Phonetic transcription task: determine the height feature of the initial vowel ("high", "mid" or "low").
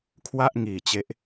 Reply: low